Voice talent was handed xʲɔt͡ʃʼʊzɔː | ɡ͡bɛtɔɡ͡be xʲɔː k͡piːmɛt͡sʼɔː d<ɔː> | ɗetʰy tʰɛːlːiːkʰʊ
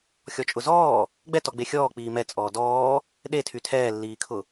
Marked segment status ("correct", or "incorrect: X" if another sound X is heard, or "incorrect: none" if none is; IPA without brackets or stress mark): correct